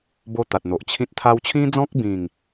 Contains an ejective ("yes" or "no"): no